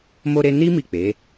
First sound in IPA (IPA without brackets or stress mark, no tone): m